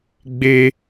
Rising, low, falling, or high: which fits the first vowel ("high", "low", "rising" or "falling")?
high